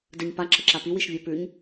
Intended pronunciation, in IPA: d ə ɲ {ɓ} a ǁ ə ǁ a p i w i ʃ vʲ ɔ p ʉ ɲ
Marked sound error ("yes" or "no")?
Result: yes